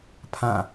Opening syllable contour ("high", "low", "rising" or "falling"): falling